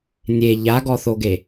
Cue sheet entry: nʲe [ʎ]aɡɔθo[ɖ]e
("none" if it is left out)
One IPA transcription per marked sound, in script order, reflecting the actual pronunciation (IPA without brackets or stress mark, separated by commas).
ʎ, ɡ